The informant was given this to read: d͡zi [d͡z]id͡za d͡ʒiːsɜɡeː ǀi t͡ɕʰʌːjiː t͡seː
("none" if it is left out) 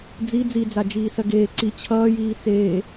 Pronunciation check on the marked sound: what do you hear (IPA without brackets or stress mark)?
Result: d͡z